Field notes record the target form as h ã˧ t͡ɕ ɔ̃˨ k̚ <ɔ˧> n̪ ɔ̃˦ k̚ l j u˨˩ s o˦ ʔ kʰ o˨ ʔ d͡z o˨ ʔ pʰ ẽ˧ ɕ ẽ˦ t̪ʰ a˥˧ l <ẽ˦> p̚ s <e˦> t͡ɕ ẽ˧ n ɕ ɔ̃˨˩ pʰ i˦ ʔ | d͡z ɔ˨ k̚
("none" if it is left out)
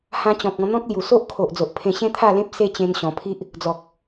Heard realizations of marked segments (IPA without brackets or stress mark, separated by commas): ɔ̃˧, ẽ˦, e˦